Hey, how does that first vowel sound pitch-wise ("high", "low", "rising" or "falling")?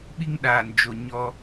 high